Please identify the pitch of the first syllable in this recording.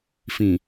low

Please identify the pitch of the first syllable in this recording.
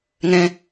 high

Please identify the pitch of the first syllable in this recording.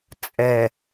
low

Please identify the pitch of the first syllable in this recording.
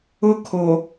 high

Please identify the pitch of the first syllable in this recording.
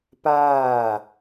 falling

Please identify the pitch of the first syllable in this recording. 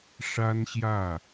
high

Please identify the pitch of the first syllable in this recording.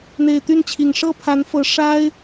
low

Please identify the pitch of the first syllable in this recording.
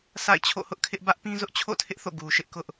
falling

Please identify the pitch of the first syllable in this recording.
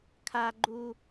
high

